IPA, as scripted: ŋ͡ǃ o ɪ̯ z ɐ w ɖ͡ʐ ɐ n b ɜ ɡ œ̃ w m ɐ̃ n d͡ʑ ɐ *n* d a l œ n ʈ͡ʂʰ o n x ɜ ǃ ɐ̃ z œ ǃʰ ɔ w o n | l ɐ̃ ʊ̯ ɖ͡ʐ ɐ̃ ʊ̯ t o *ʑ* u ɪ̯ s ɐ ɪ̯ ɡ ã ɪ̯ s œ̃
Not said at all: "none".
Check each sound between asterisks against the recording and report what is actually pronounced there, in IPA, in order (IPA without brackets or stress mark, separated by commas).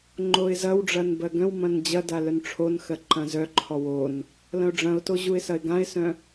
none, ʑ